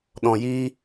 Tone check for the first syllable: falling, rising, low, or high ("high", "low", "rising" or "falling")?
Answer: low